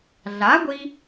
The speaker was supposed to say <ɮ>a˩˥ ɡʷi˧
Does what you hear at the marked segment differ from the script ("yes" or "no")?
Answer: no